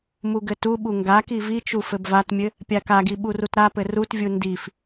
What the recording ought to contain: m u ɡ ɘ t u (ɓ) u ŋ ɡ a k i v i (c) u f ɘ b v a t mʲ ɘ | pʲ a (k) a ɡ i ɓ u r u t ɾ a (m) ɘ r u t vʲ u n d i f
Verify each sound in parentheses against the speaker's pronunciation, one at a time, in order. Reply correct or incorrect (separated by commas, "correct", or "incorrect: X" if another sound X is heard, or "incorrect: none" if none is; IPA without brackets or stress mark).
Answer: correct, incorrect: t͡ʃ, correct, incorrect: p